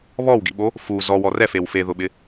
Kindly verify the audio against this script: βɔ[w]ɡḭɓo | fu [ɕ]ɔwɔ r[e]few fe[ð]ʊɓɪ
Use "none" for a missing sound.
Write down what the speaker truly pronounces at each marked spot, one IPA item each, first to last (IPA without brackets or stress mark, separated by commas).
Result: w, z, ɛ, ð